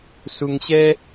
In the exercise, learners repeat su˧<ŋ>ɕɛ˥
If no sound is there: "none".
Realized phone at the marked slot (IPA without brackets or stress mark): ŋ